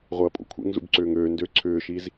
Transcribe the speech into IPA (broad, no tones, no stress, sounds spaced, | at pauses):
ʁʷ ɐː pʼ ṵ kʷʰ ḛ ŋ z ṵ b ǀ ʏː ŋ øː n d ø ǀʰ ʏː ʃ i z